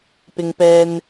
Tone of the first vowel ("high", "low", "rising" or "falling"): high